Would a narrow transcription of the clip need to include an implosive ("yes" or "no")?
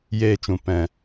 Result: no